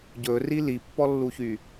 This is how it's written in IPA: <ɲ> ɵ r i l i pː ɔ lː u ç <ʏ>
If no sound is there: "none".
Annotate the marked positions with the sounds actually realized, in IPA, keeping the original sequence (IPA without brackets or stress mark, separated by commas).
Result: ɟ, y